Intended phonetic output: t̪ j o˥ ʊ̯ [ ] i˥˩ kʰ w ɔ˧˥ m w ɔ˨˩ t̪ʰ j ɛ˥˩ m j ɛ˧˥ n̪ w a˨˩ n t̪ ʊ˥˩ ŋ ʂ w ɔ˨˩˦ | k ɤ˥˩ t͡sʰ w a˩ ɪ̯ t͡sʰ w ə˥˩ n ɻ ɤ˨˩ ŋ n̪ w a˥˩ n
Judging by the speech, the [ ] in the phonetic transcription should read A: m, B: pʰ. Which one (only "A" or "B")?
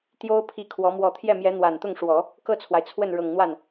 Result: B